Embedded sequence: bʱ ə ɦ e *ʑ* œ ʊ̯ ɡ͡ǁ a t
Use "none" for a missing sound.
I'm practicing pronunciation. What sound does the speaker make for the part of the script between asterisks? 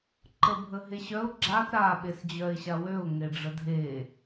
ɕ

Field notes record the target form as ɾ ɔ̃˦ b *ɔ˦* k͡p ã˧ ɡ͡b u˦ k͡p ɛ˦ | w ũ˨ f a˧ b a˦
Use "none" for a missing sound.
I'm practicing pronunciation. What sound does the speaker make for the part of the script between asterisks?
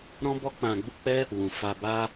ɔ˦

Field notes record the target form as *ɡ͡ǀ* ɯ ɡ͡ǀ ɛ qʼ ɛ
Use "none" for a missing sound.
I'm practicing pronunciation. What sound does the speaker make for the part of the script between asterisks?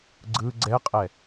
ɡ͡ǀ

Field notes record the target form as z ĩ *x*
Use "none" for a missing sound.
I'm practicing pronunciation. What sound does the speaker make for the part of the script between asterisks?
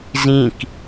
k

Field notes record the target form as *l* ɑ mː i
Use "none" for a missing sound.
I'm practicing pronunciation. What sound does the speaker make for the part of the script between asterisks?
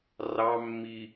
r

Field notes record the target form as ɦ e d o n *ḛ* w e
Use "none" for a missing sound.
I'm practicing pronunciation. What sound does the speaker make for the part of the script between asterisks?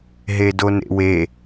ḛ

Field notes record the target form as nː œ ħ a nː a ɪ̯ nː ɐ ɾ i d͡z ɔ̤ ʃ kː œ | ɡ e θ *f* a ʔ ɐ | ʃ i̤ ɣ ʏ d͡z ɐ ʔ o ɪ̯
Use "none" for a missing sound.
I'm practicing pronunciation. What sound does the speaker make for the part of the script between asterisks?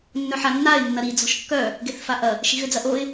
f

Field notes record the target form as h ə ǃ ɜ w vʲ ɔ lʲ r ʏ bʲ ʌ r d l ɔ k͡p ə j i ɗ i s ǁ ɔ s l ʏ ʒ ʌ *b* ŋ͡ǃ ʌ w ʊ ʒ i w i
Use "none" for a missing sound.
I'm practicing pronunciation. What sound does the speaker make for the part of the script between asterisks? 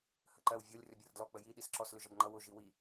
b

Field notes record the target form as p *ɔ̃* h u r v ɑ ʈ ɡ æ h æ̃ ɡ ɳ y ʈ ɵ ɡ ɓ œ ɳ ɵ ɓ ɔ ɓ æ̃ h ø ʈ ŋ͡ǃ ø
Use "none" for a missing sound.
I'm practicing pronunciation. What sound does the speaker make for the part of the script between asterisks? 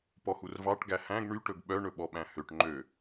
ɔ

